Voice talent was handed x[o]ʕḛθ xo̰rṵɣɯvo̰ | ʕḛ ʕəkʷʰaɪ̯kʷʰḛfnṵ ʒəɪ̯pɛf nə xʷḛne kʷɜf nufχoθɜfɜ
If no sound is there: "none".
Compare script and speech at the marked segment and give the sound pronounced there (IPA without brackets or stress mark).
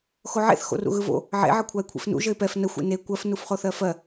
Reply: o